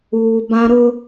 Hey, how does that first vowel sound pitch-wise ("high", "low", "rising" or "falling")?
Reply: low